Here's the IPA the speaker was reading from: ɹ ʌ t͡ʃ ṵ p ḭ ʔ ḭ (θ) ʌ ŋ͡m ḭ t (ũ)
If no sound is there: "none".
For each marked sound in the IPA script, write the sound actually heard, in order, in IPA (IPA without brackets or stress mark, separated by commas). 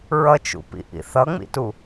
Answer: θ, u